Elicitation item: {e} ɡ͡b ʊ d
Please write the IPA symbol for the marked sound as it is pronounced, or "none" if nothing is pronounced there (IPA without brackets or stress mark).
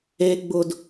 e